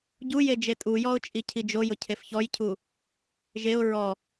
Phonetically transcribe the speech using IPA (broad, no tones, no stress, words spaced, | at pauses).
ɟuje d͡ʒetʼujɔʊ̯ t͡ʃʼicʰid͡ʒojʊ cʰefçɔjcʰu | ʒeʊ̯ ɹɔ